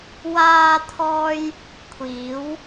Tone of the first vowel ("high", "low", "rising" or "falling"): high